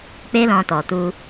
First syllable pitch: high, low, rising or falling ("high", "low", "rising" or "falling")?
high